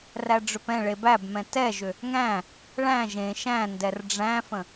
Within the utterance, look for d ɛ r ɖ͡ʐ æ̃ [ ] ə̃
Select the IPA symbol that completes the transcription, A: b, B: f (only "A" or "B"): B